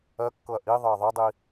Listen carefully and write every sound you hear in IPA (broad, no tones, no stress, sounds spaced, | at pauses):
ɜ kː ɤ ɐ̯ ʔ i ðˤ ɤ ɐ̯ ðˤ ɤ dˤ i